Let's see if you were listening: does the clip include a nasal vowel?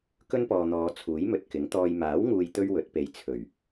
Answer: no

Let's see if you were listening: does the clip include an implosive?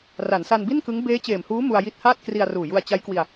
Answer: no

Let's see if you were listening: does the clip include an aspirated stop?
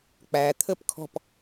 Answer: yes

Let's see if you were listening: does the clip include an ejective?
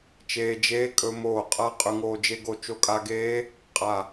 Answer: yes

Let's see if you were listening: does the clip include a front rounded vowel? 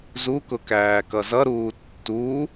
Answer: no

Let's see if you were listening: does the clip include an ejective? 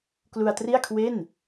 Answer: no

